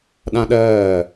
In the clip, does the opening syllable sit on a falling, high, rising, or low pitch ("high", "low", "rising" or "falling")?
high